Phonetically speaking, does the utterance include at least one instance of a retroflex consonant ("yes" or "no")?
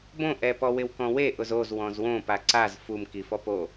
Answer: no